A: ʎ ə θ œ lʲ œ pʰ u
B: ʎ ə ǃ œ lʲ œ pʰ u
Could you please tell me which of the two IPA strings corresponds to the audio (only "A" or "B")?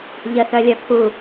A